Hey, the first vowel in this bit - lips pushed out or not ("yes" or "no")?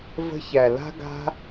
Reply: no